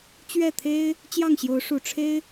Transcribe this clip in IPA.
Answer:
t͡ɕɥɛ˥˩t̪ʰe˥ɪ̯ | t͡ɕjɑ˥˩ŋɕjo˧˥ʊ̯ ʂu˨˩ ʈ͡ʂʰe˥ɪ̯

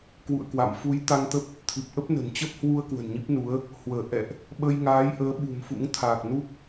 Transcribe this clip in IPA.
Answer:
kwṵ˧˨ə̯kwa̰˧˨m fu˨˦j t̪a˧ŋt̪ə˦˥p̚ | t̪ʰɨ˨˩p̚ʔə˦˥p̚ nə̤˨˩n t͡ɕə˦˥p̚hwu˧ə̯ kwə̤˨˩nɲi˦˥p̚nu˨˦ə̯ | hwəː˧˩ ʔɛ̰˧˨ʔ | ɓə˧jŋaː˨˦jʔəː˨˦ ɓṳ˨˩mfṵ˧˥ŋt̪ʰaː˨˩k̚ nu˦˥k̚

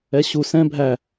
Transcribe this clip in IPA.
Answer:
ɛɕu sɛ̃ bʱæ

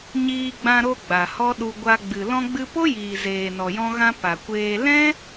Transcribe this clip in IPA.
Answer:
ɲiː˧ɡ͡bã˧ɾo˧ ɡ͡ba˨hɔ˦ɗu˧ ɡʷa˧ ɡ͡bɨ˨ lɔ̃˧ɡ͡bɨ˧po˦jiː˨ zeː˨nɔ˨jɔ̃˧ɣã˧ pa˨kʷeː˧ lɛ̃˦

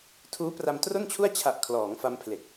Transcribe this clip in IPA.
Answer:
tʰuː˦˥pra˧mtro˥˩nt͡ɕʰu˥˩a̯ t͡ɕʰa˨˩ʔ kʰlɔː˩˦ŋfa˧mpʰle˨˩k̚

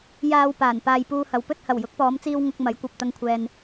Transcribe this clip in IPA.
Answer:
jaː˧wpaː˨˩n paː˧jpuː˧hɐ˨˧w pɵ˧t̚hɐ˨˩w jʊ˨˥k̚pɔː˨˧mt͡siː˧w ŋʊ˨k̚ mɐ˨˥jkʷɐ˨p̚ t̪ɐ˧ŋkʷʰɛː˨n

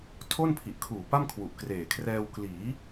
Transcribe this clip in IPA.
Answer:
tʰo˥˩npʰi˨˩ʔkʰuː˨˩ pa˥˩mkʰwu˨˩ʔkreː˨˩kʰrɛː˧w kliː˩˦

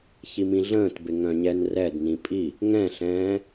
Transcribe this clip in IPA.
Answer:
çimĩɮə̃ːtbɪ ŋœ̃ɲɛnrɛdnĩ pʼi | ŋɛ̃ɬɛ̃ː

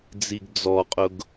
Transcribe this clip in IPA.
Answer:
d͡ziɡd͡zɔqʼʊɡ

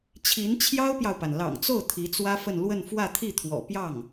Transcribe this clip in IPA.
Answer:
t͡ɕʰi˧˥nt͡ɕʰjɑ˥ʊ̯pjɑ˨ʊ̯pa˩n lɑ̰˨˩ŋt͡so˥˩ʊ̯ t̪ʰi˧˥t͡swä˥fə˥˧n lwə˥˧nfwä˥˧t̪ʰi˥˩t̪ʰwɔ̰˨˩ pjɑ˥˩ŋ

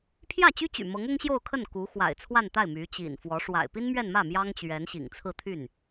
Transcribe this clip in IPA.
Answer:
pʰjä˥˩t͡ɕy˥t͡ɕy̰˨˩ mɤ˧˥ŋʊ˥ŋɕjo˥˧ʊ̯kʰə˥˩n ku˧˥ xwa̰˨˩ɪ̯t͡sʰwa˥˧nt̪a˥˩ɪ̯ my˧˥t͡ɕḭ˨˩nfwɔ˧˥ ʂwa̰˨˩ɪ̯pi˥nmɥɛ˥˧nmä˥˩ mjɑ˥ŋt͡ɕɥɛ˧˥n ɕḭ˨˩ŋt͡sʰɹ̩˥˧t̪ʰy˥˩n

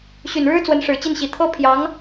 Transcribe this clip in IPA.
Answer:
ɕy˨˩nɻɻ̩˥ t͡swə˧˥nʂɻ̩˨˩t͡ɕi˥˩nɕi˨˩ t̪ʰɤ˥ pʰjɑ˧˥ŋ

